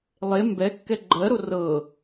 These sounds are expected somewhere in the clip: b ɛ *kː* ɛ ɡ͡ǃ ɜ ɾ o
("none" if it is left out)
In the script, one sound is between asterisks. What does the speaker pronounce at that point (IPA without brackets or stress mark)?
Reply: kː